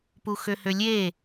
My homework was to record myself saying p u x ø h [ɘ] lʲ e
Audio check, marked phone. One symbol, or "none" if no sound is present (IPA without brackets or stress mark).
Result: ø